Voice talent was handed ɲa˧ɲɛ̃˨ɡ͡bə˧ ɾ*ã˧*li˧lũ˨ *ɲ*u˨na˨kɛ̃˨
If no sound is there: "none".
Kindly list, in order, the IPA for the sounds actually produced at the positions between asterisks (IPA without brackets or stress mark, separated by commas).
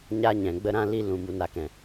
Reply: ã˧, m